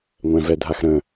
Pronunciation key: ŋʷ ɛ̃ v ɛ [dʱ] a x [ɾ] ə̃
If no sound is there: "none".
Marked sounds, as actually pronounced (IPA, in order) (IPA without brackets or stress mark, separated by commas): dʱ, ɾ